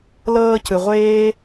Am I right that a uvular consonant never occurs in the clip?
no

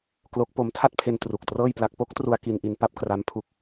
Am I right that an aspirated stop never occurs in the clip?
no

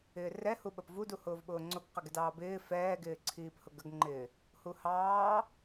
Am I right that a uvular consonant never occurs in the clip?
no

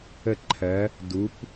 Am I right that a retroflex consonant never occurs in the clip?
yes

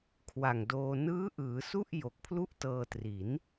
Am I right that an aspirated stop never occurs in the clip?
no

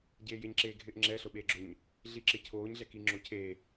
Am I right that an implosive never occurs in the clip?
no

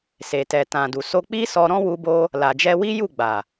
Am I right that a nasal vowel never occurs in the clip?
no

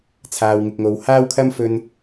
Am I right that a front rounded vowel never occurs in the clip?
yes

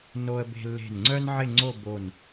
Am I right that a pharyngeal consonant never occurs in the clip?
no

